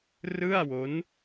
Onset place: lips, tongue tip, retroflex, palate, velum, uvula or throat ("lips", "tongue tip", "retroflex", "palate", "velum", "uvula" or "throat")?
tongue tip